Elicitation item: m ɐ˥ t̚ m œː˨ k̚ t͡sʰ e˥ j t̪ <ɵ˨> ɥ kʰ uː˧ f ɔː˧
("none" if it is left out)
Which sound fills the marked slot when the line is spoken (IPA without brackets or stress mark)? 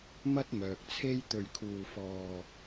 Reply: ɵ˧